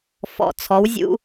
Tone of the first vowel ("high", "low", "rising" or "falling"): low